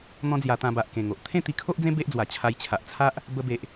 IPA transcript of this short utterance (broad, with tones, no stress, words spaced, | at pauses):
n̪ɔ̃˦d͡zja˧t̪ã˧ba˨ʔ kẽ˨˩ŋo˨ʔ t̪ʰẽ˥˧t̪i˧kʰo˦ʔd͡zẽ˦ be˦ʔd͡zwa˨˩ t͡ɕʰa˧jt͡ɕʰa˨ʔt͡sʰa˦ʔ | bə˧be˨ʔ